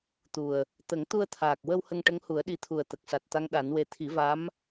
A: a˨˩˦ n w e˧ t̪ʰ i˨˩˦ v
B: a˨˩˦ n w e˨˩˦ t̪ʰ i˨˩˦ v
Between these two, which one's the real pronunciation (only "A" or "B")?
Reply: A